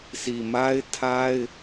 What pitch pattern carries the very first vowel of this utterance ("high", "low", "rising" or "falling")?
low